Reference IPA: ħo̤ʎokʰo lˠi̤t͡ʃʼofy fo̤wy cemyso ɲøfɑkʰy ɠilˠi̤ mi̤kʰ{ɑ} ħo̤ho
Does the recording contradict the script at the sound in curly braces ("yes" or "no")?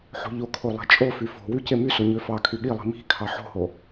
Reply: no